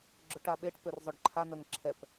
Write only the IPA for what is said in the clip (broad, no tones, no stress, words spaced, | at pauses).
ɡ͡ǁʊʈaɓeʈ pørzˤøɖǃʰa nœŋǁʰɛp